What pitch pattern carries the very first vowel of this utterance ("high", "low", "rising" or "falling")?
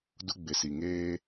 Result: high